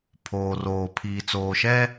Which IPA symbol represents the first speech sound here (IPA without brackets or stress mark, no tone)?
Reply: pʰ